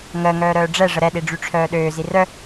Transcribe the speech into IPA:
ŋ əː ŋ œː ɾ œː ɖ͡ʐ ɛ ʐ ə ɾ ɛ ɗ i ɖ͡ʐ y ʈ͡ʂʰ œː ɗ øː z i r œ

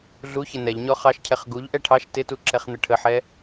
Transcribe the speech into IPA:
ɮ u ç ɪ n ɛ ʎ ɲ ɔ χ ɑ ʃ cʰ ɛ χ ɡ u ʎ ʔ ɛ ʈʰ ɑ ʃ t ɪ t u ǁ ɛ χ n̪ ə ʈʰ ə ħ ɛ

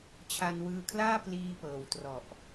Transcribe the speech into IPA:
t͡ɕʰ a˧ n w ɯː˧ kʰ l aː˥˩ p l iː˧ p ɤː˨˩ w t r ɔ˨˩ ʔ

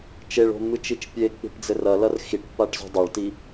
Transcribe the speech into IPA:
t͡ʃ e ɭ o̤ mː ɨ t͡ʃ i t͡ʃ pʲ e k͡p i̤ ʈ d͡z ɘ r ɐ l ɐ r x i ʈ pː a ʈ z o̤ dˤ a ɭ t i

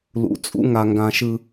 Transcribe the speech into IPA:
l ṵ˨ t͡sʼ ṵ˦ ŋ a˨ ŋ ɡ ã˨ ʃ ɯ˨

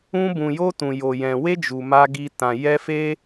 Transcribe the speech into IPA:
ũ˦ b ũ˧ j o˦ t ũ˧ j o˧ j ɛ̃˧ w e˦ d͡ʒ u˧ m a˦ ɡ i˦ t ã˧ j ɛ˦ f e˦

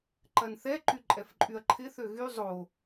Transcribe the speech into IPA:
ǃ ɐ n θ ɛ ǃ y ǃʼ ɛ f ǃʼ y ɐ̯ ǃʰ ɪ θ ø ɣ y zˤ o

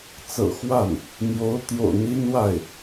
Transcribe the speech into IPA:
t͡s ɤ̰˨˩ x w a˥˩ n | n̪ j o˧˥ ʊ̯ t̪ j o̰˨˩ ʊ̯ n̪ i˥ n w a˥˩ ɪ̯

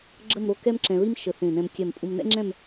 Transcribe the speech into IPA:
ɡ͡ǁ ə˥˧ m ɾ o˥˧ k ɛ˥ m ǁ ɛ̃˧ ɹ i˥ m ʃ ə˧˩ θ ẽ˧˩ n ɛ̃˧ m kʲ ɛ˧˩ m pʼ u˧ m n ɛ̰˥ ŋ͡ǁ ɛ̃˥˧ m

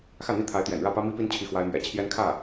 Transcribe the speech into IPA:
x ä˥˩ n̪ i˥ t̪ʰ a˧˥ ɪ̯ t̪ j ɛ̰˨˩ n ɻ ä˥˩ p ä˥ m i˥ p i˥ n t͡ɕʰ i˥˩ x w a˥ ɪ̯ m ɥ ɛ̰˨˩ t͡ɕʰ j ɛ˥ n kʰ ä˥˩

